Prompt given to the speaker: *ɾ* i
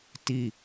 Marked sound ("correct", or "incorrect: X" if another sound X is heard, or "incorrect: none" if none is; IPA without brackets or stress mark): incorrect: t